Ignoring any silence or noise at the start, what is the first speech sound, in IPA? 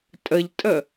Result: tʼ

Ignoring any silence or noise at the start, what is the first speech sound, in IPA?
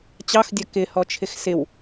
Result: t͡ɕ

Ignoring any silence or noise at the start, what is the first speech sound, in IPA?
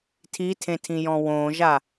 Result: tʰ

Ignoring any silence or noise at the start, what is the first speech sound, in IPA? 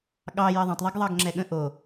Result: ɠ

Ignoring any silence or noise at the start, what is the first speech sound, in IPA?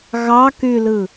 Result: ɣ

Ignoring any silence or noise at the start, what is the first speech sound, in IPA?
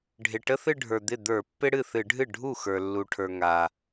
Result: ɖʱ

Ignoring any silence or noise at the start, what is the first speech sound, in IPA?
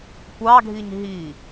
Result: kʷ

